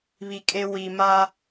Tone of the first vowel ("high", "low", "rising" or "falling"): low